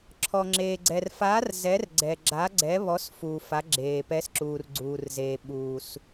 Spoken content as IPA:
ǁʰ ɔ˨ ŋ͡ǁ eː˨ ɡ͡ǀ ɛ˨ r f aː˨˥ r z ɛ˨˥ r ɡ͡ǀ ɛ˨ ɡ͡ǁ a˨˥ ɡ͡ǀ ɛ˨˥ β ɔ˨˥ s f uː˨ f a˨˥ ɡ͡ǁ eː˨ p ɛ˨˥ s ǁ uː˨ r ɡ͡ǀ uː˨ r z eː˨ ɓ uː˨ s

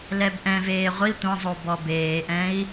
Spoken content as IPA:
l ɛ b ʔ ɛ̃ v eː ʁʷ i tʷ ɐ̃ zˤ o b ɔ b eː ʔ ɛ̃ i̯

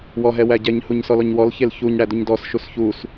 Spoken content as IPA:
w ɔ ɦ ɛ w æ ɟ ɛ ɲ h u ɲ s ɔ l ɔ ɲ w ɔ l ç e l ç u ɲ ɽ æ d u ɲ d ɔ s ʃ u s ç u s

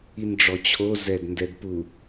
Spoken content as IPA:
i n ɖ͡ʐ ɔ t͡ɕʰ o z ɛ d n d ɛ d p u

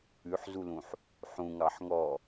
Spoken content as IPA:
ʉ ħ z u l ũ ħ | ħ ũ ŋ ɑ ħ ŋ ɔ

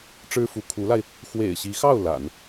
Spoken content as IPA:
ʈ͡ʂ ɻ̩˥ f u˧˥ kʰ u˧˥ l a˧ ɪ̯ | x w ḛ˨˩ ɪ̯ ɕ i˧˥ x ɑ˥˩ ʊ̯ l a̰˨˩˦ n

